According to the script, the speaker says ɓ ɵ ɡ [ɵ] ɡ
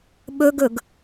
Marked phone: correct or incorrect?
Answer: correct